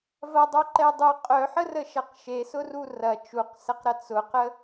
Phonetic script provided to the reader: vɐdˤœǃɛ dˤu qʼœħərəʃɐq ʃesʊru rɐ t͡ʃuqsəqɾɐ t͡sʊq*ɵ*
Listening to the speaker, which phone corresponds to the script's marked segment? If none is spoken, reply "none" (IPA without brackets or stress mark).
ə